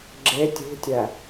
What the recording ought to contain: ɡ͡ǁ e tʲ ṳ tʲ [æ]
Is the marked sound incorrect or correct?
correct